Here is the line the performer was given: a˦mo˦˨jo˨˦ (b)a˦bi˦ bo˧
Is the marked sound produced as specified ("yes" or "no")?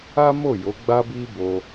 no